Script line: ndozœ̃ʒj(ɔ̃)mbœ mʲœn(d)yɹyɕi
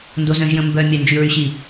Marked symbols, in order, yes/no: no, no

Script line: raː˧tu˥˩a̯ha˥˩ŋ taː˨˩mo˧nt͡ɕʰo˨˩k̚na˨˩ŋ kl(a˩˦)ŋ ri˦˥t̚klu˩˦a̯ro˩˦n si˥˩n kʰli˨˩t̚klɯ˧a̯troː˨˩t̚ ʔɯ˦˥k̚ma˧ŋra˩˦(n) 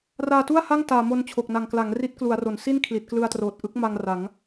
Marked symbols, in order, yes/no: yes, no

